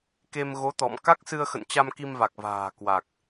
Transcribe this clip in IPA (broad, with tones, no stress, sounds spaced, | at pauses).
k e˧ m ɣ o˨˦ t̪ ɔ̰˧˨ m k a˦˥ k̚ s ɨ˧ ə̯ x ə̰˧˨ n t͡ɕ a˧ m k i˧ m v a˨˩ k̚ v a̤ː˨˩ k w a˨˩ k̚